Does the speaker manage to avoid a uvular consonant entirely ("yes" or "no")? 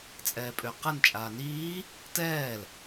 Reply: no